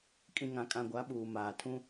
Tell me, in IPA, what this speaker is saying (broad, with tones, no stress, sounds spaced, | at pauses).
kʼ ĩ˨ ŋ ã˨ kʼ ã˨ ɡʷ a˨˦ ɓ uː˨ m aː˨ tʰ ũ˦